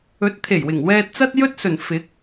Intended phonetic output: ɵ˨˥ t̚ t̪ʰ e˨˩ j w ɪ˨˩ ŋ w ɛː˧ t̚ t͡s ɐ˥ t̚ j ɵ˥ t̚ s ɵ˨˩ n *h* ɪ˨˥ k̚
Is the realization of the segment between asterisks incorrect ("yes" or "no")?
yes